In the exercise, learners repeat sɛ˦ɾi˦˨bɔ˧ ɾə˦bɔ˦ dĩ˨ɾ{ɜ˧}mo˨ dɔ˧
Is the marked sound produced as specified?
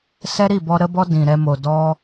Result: no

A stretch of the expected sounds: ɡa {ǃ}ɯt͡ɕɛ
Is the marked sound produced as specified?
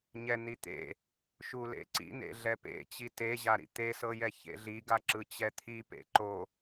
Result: no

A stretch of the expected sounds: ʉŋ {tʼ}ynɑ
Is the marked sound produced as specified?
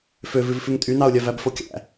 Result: yes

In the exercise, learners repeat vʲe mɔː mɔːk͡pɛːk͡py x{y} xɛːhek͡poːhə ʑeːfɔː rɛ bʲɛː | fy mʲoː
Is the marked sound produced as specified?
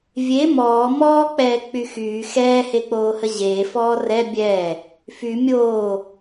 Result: no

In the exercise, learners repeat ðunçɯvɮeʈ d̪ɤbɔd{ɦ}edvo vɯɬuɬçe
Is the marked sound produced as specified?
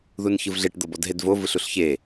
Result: yes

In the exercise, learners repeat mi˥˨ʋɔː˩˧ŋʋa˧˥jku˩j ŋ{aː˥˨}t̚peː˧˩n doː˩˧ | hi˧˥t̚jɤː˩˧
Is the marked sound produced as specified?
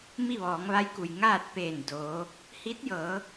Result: yes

